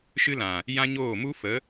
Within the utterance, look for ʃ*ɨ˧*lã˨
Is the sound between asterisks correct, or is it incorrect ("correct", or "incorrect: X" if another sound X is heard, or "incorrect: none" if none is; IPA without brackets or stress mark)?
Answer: correct